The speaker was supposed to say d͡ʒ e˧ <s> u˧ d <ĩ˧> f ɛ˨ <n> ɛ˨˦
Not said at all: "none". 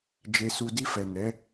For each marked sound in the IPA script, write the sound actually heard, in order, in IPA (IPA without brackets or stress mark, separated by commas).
s, i˧, n